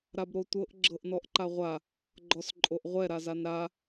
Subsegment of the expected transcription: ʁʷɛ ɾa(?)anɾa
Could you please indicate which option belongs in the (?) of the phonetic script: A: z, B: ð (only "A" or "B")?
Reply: A